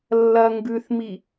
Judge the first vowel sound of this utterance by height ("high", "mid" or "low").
low